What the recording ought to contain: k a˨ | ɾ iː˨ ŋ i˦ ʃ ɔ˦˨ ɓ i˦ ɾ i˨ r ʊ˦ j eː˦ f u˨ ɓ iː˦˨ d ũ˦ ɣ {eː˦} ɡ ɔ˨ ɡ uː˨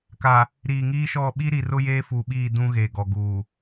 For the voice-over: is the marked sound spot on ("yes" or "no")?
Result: no